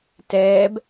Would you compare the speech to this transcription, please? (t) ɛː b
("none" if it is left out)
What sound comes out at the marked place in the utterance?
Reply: t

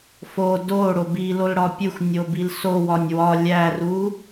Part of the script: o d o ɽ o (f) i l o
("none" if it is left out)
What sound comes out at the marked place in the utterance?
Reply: b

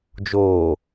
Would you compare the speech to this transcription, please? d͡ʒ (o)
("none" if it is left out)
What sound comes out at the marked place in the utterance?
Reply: oː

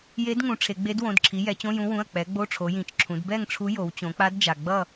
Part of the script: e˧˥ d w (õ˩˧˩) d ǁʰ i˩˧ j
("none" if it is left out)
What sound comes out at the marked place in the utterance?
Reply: õ˩˧˩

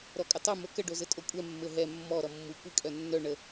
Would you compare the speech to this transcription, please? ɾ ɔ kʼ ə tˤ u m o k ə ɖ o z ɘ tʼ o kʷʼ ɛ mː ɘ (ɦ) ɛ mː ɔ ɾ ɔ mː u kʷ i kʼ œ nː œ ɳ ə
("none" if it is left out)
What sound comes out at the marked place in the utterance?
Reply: ɦ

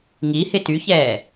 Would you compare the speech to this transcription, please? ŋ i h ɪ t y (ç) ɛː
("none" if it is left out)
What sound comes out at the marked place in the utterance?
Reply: ç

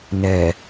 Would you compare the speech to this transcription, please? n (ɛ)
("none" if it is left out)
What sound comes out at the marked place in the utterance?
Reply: ɛ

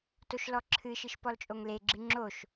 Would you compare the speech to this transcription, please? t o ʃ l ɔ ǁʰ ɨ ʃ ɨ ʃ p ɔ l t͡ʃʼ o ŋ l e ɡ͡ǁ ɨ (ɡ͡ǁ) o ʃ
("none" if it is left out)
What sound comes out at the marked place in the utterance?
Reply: ŋ͡ǁ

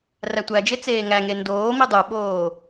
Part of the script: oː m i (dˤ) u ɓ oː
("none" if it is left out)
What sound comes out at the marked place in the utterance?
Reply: dˤ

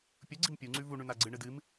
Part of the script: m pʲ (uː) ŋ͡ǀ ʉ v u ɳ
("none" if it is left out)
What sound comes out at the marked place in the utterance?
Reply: u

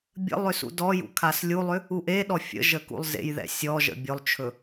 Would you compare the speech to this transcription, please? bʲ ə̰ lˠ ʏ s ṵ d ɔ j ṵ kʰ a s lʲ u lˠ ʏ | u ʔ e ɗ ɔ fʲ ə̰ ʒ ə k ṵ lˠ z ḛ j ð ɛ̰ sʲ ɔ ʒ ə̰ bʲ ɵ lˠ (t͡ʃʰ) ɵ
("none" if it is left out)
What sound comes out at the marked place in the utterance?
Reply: t͡ʃʰ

